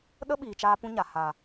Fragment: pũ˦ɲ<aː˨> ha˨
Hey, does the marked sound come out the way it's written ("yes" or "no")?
no